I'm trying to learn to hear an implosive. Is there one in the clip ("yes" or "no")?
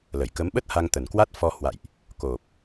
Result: yes